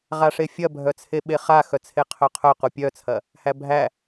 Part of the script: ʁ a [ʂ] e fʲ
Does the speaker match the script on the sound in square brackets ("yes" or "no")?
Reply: yes